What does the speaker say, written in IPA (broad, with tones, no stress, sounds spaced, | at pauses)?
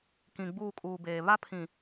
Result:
k ĩ˨ ɡ͡b uː˦˨ kʼ uː˨ b eː˨ β a˦ pʰ ĩ˨